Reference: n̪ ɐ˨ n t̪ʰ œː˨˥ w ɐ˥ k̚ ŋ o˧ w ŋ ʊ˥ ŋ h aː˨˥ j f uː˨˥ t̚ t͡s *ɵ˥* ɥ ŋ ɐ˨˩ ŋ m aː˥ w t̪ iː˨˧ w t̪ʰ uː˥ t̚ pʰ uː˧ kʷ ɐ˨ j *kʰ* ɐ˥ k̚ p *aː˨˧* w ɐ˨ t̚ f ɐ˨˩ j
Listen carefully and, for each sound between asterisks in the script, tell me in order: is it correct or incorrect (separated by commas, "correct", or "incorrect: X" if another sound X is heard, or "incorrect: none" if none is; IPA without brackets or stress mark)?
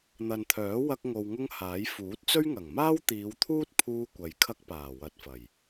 correct, correct, incorrect: aː˨˩